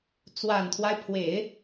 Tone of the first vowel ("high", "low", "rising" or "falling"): low